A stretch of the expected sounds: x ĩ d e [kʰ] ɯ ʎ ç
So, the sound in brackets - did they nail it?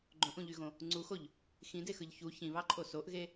no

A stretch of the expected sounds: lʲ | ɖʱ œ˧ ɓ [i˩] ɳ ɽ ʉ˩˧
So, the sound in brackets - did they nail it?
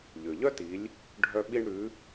no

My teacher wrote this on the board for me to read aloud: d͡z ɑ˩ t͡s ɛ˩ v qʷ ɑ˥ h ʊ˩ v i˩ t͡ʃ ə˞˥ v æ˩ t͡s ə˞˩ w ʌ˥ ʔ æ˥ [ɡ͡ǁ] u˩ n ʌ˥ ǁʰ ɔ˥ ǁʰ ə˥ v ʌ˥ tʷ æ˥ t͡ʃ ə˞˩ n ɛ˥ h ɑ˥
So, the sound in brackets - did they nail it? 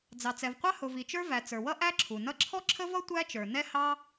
no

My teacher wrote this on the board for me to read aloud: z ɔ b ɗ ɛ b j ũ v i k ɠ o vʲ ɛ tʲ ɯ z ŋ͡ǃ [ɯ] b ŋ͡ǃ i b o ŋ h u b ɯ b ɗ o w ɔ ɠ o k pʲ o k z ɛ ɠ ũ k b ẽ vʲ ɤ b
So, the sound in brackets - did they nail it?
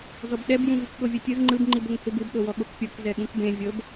yes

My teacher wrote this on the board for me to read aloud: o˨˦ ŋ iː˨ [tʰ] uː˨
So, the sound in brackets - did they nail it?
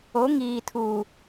yes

